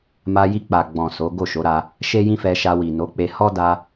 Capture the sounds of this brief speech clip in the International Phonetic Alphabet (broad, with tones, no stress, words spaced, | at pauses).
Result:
ma˧ji˧k͡pa˨ɡ͡bɔ̃˨ so˨˦ ɡo˦˨ʃo˨˦ɾa˧ | ʃe˦jĩ˦fɛ˧ʃa˧ wi˨no˨˦ k͡pe˧hɔ˦ da˧